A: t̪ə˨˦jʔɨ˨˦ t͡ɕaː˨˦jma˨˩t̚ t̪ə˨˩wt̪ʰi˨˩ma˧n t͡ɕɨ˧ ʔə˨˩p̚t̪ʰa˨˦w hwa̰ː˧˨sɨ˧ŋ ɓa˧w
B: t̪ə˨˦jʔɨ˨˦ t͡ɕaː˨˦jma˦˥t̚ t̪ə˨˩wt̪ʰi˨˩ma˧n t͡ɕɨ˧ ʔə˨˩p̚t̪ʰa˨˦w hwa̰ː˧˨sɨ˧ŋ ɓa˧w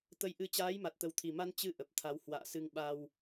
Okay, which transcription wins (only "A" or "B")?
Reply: A